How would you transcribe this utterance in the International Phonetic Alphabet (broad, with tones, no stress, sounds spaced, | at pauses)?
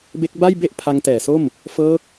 b e˦˥ k̚ b a˥˩ j b e˥˩ ʔ pʰ a˦˥ ŋ t ɛː˨˩ s o˥˩ m | f ɤː˦˥ k̚